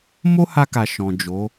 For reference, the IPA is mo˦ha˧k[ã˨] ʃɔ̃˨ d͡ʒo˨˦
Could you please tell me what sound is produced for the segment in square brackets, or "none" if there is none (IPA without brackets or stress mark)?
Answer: a˨